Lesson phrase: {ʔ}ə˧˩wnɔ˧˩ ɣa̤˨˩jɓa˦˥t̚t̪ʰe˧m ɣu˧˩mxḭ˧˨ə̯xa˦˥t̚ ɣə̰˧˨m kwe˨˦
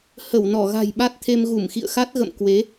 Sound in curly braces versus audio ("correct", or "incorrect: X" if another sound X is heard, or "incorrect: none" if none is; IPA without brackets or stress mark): incorrect: h